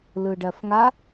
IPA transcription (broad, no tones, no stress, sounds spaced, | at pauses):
l ɯ ɖ ɜ f ŋ a